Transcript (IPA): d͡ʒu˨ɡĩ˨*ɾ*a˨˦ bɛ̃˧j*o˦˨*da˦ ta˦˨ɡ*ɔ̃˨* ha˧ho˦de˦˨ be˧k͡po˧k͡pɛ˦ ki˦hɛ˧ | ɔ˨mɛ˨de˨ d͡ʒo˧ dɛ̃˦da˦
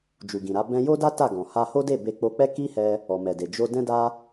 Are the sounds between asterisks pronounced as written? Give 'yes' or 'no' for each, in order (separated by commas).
yes, no, yes